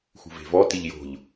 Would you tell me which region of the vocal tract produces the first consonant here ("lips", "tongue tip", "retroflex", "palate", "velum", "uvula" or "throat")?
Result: velum